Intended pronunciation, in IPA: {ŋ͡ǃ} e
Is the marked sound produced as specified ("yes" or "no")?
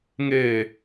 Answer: no